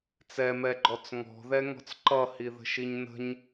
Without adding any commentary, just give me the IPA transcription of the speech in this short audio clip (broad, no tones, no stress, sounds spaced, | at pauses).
t͡s ɛ m ɛ ɡ͡ǃ ɔ t͡s ŋ ɔ̤ ð ɛ ŋ ɔ̤ t͡s ǃ ʌ h i ð ə̤ ʃ i ɲ n ə̤ ɲ